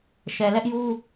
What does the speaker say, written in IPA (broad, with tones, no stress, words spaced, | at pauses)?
ʃɛ˨lɛ˦ʔju˦